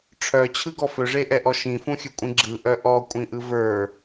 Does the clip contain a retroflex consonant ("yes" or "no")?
yes